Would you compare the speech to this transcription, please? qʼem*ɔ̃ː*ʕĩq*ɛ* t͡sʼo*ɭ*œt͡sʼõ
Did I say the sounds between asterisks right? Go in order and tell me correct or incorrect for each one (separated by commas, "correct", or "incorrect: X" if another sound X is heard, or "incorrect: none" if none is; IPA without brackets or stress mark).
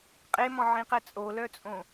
incorrect: ɔ̃, correct, incorrect: l